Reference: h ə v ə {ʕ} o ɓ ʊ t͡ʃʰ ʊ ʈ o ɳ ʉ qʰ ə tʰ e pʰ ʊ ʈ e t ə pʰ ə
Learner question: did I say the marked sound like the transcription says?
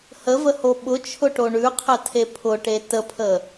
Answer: no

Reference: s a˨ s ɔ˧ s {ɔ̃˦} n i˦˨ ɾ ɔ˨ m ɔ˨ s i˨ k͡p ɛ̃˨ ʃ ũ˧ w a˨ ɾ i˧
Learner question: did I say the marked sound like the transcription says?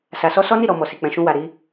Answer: no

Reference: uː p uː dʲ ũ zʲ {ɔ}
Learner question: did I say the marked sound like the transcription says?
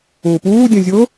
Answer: no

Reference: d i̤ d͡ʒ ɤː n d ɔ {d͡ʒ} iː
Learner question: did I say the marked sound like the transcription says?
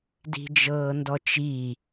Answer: no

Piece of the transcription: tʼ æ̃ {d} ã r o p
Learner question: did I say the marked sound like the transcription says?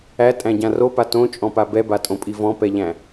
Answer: no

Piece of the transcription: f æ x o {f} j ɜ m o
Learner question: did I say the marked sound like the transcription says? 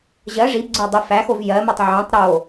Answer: no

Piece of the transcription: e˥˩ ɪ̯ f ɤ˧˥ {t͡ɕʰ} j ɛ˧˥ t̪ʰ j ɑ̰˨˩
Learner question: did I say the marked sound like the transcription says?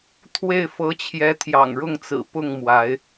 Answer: yes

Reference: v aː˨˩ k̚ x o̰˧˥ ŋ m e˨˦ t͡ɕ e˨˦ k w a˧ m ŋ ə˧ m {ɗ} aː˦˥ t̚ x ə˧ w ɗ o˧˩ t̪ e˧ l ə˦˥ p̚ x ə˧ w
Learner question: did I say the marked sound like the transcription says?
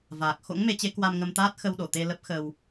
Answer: no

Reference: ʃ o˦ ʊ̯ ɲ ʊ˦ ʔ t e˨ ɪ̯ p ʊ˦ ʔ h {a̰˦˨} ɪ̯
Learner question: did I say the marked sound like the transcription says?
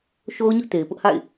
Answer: yes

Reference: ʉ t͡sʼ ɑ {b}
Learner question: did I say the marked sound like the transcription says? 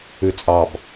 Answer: yes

